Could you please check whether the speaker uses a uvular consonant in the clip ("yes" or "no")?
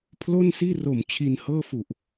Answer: no